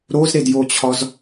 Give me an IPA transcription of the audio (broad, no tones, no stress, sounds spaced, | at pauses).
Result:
ɾ o z ɾ e d j o t͡ɕʰ ɒ z